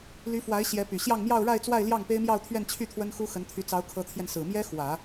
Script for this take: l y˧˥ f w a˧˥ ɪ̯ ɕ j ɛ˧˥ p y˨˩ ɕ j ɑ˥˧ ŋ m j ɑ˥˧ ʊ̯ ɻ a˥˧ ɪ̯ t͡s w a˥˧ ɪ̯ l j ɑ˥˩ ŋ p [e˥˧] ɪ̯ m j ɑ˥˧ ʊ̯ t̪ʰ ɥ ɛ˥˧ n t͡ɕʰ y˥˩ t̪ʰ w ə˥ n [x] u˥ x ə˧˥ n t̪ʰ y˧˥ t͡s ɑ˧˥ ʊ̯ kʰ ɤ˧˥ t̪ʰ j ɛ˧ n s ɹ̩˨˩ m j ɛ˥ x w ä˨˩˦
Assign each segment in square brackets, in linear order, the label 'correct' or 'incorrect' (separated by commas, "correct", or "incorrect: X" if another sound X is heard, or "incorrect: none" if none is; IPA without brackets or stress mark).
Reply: incorrect: e˥, correct